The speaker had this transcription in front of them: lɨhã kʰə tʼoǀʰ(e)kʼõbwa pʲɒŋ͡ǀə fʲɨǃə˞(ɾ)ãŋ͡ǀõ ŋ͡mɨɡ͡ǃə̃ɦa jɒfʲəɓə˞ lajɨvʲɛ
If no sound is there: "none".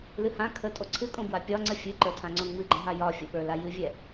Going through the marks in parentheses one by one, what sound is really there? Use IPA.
ɨ, tʰ

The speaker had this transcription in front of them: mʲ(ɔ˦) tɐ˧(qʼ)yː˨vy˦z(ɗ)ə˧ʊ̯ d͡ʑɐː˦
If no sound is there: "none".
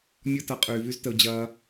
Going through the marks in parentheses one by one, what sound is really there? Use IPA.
ɔ˦, qʼ, t

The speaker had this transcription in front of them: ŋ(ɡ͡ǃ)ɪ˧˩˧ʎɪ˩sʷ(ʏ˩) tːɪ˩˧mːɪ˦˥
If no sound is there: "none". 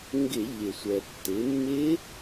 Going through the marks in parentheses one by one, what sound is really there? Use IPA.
ɡ, ɛ˩

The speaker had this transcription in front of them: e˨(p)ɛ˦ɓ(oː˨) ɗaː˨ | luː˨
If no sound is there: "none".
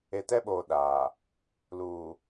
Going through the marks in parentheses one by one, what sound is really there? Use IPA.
t, oː˨

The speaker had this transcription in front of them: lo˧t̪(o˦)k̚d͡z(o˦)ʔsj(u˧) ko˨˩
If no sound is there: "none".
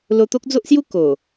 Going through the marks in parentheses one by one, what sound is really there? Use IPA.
o˦, o˦, u˥˧

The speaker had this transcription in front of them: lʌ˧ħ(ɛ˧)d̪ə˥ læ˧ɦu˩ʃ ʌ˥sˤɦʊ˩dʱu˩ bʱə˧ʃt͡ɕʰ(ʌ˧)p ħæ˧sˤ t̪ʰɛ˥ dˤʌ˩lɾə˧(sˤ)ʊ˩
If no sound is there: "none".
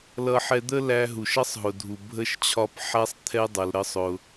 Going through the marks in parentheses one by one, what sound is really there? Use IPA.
ɛ˧, ɒ˧, sˤ

